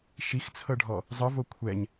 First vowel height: high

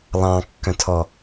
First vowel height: low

